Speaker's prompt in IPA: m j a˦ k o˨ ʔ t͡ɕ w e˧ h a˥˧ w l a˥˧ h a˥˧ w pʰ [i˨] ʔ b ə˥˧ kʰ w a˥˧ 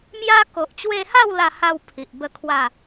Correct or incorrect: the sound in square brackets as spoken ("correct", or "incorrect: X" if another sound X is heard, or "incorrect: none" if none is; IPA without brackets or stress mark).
correct